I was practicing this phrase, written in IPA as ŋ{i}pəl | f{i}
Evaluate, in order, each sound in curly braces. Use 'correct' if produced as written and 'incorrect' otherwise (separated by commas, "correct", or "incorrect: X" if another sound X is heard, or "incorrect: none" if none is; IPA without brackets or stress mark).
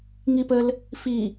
correct, correct